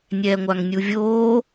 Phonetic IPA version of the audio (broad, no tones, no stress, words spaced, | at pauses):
nʲɛːŋʷaŋnʲuvʲoː